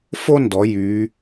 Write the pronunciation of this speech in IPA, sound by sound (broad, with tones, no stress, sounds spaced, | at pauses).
f o˥ n d ɔ˩˧ j y˩˧